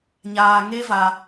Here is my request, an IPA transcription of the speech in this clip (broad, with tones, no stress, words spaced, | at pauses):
ɲaː˧ ŋe˦va˧